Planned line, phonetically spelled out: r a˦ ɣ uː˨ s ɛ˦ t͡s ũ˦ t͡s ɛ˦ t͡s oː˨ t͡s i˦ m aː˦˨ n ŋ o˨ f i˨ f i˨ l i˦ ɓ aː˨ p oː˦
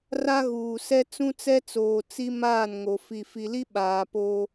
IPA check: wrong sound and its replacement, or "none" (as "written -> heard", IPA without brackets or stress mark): none